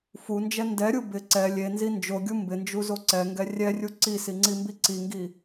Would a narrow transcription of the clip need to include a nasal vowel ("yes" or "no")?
no